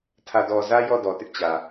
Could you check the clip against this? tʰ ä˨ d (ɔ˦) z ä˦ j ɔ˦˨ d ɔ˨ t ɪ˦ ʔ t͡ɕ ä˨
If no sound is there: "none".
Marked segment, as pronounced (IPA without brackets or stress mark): ɔ˨